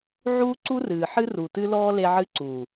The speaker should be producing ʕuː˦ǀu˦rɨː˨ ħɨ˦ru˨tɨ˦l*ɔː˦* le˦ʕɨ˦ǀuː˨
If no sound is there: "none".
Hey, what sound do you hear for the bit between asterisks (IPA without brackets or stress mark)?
ɔː˦